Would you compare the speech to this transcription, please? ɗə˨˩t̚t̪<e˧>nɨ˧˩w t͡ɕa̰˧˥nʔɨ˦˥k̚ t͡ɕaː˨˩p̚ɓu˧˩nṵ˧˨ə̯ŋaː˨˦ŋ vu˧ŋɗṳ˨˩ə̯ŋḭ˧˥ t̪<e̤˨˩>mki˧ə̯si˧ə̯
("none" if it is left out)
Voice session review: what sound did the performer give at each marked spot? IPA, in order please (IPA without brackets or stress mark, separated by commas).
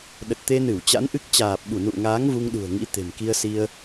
e˧, e̤˨˩